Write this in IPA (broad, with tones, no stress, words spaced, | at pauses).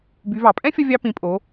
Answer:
by˩˧vɑ˩pʼɛ̃˥fʲʌ˧ vʲɑ˧pĩ˩˧pʼo˩˧